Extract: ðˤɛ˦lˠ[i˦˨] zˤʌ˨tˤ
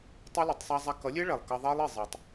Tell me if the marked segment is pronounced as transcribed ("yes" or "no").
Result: yes